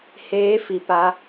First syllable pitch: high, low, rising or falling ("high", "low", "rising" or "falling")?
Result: rising